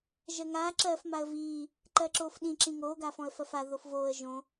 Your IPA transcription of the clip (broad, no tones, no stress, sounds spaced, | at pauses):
ʒ ɜ ŋ aː ǁ ɜː f m a ə̯ v iː | ǃ ɜ ǁ oː f ɗ ĩ ǁ ĩ ŋ oː ɡ a f ɔ̃ ə̯ f ɜ f a ð o f v oː ə̯ ʒ õ